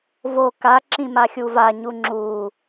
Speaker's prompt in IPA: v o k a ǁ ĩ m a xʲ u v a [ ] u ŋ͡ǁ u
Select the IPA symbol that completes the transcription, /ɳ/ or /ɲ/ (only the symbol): ɲ